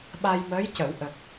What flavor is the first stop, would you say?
implosive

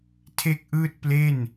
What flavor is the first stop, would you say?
aspirated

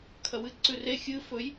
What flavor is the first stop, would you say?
aspirated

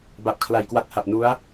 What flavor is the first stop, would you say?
plain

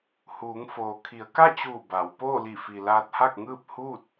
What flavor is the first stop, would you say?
aspirated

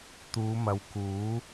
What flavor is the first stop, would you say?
plain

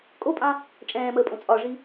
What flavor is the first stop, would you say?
ejective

